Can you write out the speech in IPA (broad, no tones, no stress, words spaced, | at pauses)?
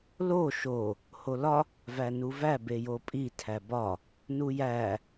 lo ʃo | holɒ | vænuvæ bejopʼi tʰæbɒ | nujæ